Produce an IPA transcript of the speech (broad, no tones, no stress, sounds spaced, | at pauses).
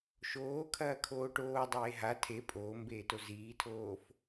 ʃ oː kʰ ɐː kʰ oː ʈ oː dˤ eː ɦ a tʰ e pʼ oː m b eː t o z iː tʰ oː f